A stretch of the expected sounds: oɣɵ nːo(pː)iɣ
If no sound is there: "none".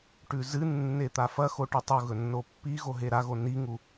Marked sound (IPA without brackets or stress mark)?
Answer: pː